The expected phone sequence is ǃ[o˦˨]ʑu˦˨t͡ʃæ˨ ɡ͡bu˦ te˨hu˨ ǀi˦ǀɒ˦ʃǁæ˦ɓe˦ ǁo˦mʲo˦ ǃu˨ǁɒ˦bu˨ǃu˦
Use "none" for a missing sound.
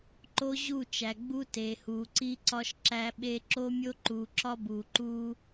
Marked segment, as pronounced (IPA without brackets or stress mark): o˦